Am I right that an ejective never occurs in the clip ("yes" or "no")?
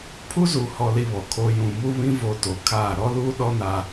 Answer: yes